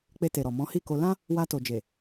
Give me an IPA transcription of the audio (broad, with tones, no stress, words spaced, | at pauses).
k͡pe˧te˨ ɾɔ˨ mɔ̃˨˦hi˦˨ko˧ lã˦ | wa˧to˨d͡ʒe˨